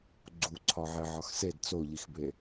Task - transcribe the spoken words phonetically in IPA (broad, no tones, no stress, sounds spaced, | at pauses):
ɡ͡ǀ u ǀʰ ɒ ʕ e ʕ ɒ x s e d t͡s o ʎ i x b e